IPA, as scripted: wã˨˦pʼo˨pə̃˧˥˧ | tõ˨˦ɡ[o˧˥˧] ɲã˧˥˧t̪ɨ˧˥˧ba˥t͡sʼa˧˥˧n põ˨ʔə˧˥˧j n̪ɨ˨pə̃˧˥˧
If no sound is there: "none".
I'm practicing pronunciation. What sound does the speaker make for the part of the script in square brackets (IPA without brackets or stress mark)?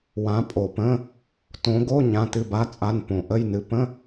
o˧˥˧